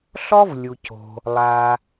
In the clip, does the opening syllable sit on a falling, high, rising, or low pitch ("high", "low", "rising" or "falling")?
high